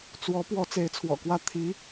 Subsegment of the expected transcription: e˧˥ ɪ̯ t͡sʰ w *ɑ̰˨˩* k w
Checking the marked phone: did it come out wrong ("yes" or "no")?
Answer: yes